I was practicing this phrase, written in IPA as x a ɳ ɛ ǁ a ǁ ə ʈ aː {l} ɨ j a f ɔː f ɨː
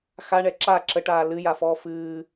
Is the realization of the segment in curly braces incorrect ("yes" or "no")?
no